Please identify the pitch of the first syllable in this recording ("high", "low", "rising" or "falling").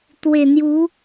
low